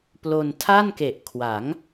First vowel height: mid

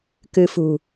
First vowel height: high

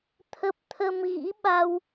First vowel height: mid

